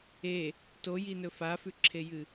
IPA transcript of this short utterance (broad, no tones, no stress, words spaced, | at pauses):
e | tojinɵ fafʉǁʰejɨ